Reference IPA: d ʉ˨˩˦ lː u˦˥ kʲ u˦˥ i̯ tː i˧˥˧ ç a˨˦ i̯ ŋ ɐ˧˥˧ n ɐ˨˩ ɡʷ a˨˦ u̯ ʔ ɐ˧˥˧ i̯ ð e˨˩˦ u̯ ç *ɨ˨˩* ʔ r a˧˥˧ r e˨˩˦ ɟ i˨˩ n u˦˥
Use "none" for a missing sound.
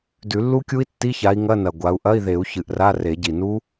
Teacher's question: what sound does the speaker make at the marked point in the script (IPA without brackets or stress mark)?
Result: ɨ˨˩